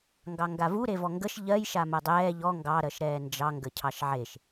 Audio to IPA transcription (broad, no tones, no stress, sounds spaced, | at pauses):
ŋ ɡ ɑ ŋ ɡ a v u ɾ e v ɔ ŋ ɡ ə ʃ ʎ ɜ j ʃ a m ɜ dˤ ɛː ʎ ɔ ŋ ɡ ɑ ɾ ɜ ʃ ɾ ɛː n d͡ʒ ɑ ŋ ɡ ə cʰ ɑ ʃ ʕ e ʃ